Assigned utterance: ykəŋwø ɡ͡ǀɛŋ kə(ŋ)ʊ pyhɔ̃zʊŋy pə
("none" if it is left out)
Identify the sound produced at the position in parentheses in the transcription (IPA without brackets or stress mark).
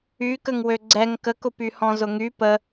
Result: k